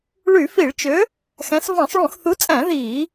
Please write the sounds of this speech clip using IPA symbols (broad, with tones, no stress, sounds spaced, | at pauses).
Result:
ɭ y˧˩˧ f i˧˩˧ ɭ t͡ʃ ø˨˥ | x æ̃˨˥ s v ɑ̃˧˩˧ sˤ ɭ ũ˧˩˧ x θ u˨˥ t͡sʼ æ̃˧˩˧ ð iː˧˩˧